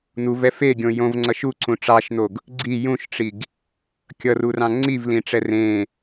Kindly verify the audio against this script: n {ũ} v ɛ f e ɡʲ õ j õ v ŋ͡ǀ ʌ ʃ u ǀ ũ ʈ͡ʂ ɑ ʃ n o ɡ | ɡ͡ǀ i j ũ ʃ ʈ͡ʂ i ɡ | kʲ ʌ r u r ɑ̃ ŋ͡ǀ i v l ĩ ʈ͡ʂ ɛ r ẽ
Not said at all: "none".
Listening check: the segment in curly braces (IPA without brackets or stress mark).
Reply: u